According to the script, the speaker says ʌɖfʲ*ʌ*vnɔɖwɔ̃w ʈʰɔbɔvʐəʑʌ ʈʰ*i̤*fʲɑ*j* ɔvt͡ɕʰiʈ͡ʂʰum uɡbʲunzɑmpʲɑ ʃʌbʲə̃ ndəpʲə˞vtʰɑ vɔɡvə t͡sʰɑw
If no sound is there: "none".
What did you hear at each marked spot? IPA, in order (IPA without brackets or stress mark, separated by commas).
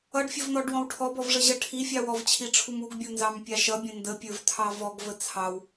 ʌ, i, w